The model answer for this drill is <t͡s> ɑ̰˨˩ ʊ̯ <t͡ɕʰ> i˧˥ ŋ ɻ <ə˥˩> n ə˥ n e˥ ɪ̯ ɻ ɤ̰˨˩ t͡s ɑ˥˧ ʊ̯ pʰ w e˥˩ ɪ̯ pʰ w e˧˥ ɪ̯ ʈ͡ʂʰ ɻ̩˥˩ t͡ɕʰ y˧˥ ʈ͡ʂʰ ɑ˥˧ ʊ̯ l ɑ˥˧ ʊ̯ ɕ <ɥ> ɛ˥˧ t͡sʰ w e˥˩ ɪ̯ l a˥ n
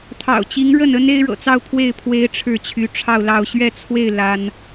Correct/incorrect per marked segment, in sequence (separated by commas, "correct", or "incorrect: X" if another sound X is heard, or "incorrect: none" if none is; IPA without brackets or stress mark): incorrect: t̪ʰ, incorrect: t͡ɕ, correct, correct